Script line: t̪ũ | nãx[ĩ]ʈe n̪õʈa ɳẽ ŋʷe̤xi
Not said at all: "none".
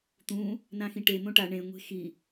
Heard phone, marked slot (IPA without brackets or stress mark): ĩ